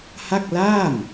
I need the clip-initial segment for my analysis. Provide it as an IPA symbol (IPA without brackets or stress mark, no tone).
h